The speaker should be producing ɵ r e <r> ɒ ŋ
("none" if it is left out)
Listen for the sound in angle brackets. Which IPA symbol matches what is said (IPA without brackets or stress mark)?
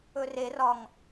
r